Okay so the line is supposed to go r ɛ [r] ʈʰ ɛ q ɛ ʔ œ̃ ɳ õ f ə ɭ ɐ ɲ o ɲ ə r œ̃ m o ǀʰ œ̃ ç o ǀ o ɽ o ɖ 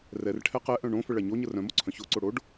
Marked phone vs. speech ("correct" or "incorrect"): correct